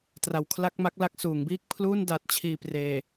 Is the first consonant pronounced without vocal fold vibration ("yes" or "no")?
yes